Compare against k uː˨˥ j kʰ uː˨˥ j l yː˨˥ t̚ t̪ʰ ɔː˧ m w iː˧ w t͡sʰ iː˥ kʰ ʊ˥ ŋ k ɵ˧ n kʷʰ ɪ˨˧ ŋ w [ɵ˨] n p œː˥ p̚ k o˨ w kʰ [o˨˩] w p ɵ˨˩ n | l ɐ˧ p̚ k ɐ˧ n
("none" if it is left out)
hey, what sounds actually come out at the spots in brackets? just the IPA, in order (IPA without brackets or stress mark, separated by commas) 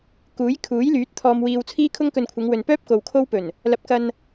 ɵ˨, o˥